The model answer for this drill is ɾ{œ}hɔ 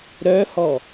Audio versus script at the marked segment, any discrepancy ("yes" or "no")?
no